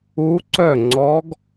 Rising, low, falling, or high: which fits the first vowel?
rising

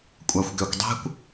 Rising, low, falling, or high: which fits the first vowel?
low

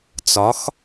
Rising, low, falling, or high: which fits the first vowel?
rising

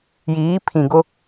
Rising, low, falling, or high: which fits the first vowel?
rising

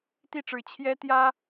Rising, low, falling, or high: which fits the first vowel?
falling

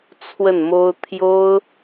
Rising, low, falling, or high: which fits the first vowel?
falling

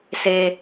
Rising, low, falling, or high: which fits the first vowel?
low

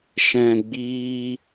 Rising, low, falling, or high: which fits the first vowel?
low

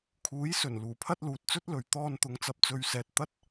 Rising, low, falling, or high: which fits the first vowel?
rising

